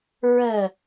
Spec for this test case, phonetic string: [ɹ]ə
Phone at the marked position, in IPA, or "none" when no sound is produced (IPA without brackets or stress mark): ɹ